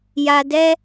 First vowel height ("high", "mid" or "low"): low